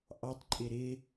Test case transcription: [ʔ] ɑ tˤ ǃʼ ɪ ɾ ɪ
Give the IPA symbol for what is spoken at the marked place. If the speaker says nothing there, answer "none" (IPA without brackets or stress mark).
ʔ